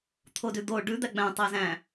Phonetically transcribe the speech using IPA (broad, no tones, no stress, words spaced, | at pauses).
t̪ʰodʉd̪o ɖʉ d̪æɡ͡bæ̃ tˤæzæ̃